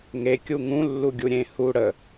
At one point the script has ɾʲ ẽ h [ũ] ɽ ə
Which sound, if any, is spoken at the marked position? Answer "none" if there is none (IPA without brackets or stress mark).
u